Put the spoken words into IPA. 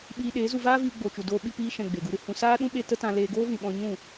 ɓ iː˧ ɗ eː˨˦ z u˧ v aː˦ v iː˧ ɡ͡b o˨ t͡ʃ u˨ d oː˧ ɓ i˧ p iː˧ ʃ ɛ̃˨ ɡ͡b e˨ ɡ u˧ ɾ ɨ˨ h ũ˧ s aː˦ ɗ ũ˦ ɓ e˧ t ə˦ t ã˧ l eː˧ ɡ oː˦ v ĩ˨ ɓ ɔ̃˧ ɲ ũ˦˨

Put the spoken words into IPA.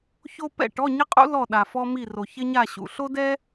ç o˥ p ɛ̰˥˨ ʈ ɔ˧˥˧ ɲ ɪ˥ qʼ ṵ˥ l ɔ˥˨ ɗ a˨ f ɔ˥ m i˥˨ r o˨ ç ɪ˥ ɲ a˥˨ ɕ ṵ˨ ɬ o˥ d ɛ˥

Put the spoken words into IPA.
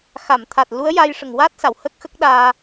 x a˨˩˨ m t̪ʰ a˨˩ t̚ l u˧˥ ə̯ j a˧ j ʂ ə˨˩˨ ŋ w a˦˥ t̚ s a˨˩˨ w h ə˦˥ k̚ x ə˦˥ k̚ ɗ aː˧

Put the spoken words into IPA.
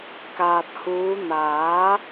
k aː˨ t̚ h uː˨˧ n̪ aː˨˥

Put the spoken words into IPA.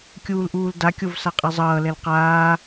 kʲ uː l ʔ uː l d a kʲ o v s a qʼ e zˤ ʌː l ɛ l q aː

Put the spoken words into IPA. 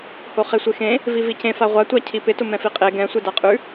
h o χ e sʷ e x ẽ | v i v i c ẽ f a ʁʷ a tʷ a cʰ i p ɪ t ʊ m ɛ̃ f i qʼ e ɡ ɛ̃ sʷ e d a qʼ ʉ

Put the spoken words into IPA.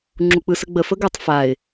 ŋ͡ǁ u k͡p ɯ s ə ɡ͡b ə f ə ɡ ɯ tˤ f a ɪ̯

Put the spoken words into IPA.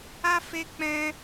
a˦ f e˦ k͡p ɛ̃˧

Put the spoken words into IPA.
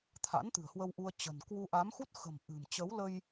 t̪ʰ a̰˧˥ n t̪ ɨ̤˨˩ ə̯ h w ə˧ w ʔ u˧ ə̯ t͡ɕ ə̤˨˩ n k w u˧ ʔ a˨˦ m x u˦˥ t̚ x ə̤˨˩ m ʔ ɨ̤˨˩ m t͡ɕ ə˨˦ w l ə˧ j

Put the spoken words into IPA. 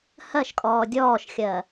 h ɜ ʃ kʼ ɔː dʲ ɔː ʃ xʲ ɜ

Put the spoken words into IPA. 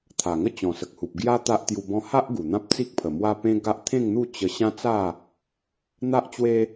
t̪ʰ a˨˩ ŋ ə˦ t͡ɕ ɔ̃˨˩ s ə˨ k̚ h u˨ p̚ ɡ j a˦ t̪ a˦ ʔ t̪ j u˧ b ɔ̃˦ h a˦ ʔ ɡ u˨˩ n̪ ã˦ p̚ t͡s i˦ k̚ pʰ ə˨˩ m w a˦ p ẽ˦ ɡ a˦ ʔ t̪ʰ ẽ˥˧ ŋ n̪ u˥˧ t͡ɕ ə˧ ɕ ã˦ t͡s a˥˧ | n̪ a˦ ʔ t͡ɕ w e˦

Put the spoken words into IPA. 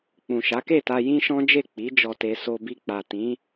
k͡p ũ˨ ʃ a˨˦ k e˦˨ t a˧ j ĩ˦ ʃ ɔ̃˦ d͡ʒ e˦˨ k͡p i˨˦ d͡ʒ ɔ˧ t e˧ s o˧ b i˧ k͡p a˨ t ĩ˨˦

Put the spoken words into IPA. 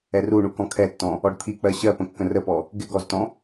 ɛ r u ɳ u k ɔ̃ kʰ ɛ tː ɔ̃ | ɔ ɖ t̪ʰ i k͡p ɜ ɕ ɜ p ə̃ kː ə̃ r ə p ɔ | ɡ ɪ ɡ ɔ z t ɔ̃

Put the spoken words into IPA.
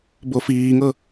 b o f iː ŋ ɤ

